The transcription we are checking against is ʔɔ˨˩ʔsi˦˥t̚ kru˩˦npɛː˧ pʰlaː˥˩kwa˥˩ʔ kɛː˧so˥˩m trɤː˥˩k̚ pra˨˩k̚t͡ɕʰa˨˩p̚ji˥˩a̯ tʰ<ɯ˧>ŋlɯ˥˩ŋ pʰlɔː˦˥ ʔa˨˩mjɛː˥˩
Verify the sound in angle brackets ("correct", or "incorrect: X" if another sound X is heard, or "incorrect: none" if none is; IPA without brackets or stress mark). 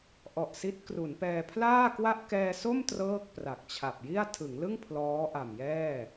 incorrect: ɯ˩˦